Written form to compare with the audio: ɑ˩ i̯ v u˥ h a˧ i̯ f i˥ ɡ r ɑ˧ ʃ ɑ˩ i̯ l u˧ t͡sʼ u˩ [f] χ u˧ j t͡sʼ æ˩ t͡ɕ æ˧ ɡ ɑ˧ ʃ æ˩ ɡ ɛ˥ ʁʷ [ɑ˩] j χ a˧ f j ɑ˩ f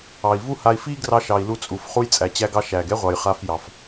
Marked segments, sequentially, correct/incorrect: correct, correct

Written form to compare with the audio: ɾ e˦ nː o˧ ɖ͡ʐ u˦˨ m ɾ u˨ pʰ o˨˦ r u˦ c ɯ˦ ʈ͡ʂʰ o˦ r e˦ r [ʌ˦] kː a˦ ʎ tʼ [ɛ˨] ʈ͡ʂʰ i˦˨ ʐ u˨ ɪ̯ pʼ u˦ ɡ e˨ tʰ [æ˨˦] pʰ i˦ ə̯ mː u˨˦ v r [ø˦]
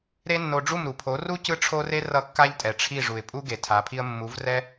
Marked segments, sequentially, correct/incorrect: correct, correct, incorrect: a˨˦, incorrect: ɛ˦

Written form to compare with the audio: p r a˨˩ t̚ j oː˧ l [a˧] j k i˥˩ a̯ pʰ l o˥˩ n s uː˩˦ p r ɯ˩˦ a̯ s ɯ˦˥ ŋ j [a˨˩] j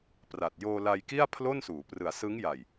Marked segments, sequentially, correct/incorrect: correct, correct

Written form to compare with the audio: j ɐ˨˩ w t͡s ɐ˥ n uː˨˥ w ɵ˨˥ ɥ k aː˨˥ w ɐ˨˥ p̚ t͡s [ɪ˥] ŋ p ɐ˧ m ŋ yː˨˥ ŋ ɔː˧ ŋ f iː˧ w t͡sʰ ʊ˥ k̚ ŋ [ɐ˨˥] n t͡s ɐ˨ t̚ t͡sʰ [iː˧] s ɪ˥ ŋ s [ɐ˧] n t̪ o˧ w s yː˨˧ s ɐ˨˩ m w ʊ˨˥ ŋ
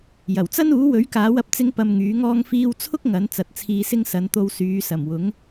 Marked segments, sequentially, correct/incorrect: correct, correct, correct, incorrect: ɐ˨˧

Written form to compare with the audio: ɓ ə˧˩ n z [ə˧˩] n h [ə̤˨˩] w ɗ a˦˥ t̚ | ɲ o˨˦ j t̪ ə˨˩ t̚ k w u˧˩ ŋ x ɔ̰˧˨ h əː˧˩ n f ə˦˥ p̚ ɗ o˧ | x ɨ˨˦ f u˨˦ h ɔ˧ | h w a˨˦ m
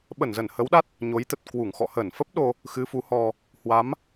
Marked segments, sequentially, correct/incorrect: correct, incorrect: ə˨˦

